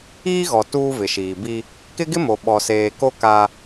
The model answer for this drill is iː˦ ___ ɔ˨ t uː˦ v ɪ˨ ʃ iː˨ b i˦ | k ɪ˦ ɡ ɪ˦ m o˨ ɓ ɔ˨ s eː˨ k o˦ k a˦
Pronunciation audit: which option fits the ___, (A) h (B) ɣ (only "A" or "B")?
B